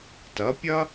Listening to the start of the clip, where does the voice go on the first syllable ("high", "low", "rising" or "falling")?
rising